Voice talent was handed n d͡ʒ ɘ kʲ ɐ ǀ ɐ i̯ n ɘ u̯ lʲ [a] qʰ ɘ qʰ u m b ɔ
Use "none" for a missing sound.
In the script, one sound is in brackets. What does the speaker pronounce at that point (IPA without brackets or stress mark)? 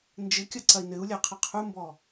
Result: a